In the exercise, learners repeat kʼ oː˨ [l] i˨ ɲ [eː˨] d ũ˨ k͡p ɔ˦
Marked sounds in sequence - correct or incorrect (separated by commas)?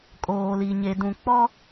correct, incorrect